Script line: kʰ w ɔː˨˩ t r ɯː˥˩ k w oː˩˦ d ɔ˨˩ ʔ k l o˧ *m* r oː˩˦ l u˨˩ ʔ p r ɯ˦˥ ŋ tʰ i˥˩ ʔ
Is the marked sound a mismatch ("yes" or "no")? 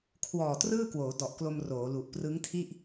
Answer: no